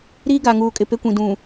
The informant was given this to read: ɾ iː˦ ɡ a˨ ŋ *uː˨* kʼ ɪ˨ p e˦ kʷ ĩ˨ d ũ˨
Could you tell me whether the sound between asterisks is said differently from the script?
no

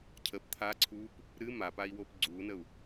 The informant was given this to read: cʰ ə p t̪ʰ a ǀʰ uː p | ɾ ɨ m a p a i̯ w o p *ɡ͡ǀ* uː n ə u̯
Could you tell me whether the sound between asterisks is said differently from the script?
no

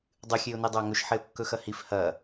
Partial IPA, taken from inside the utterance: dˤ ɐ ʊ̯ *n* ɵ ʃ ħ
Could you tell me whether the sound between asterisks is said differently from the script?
yes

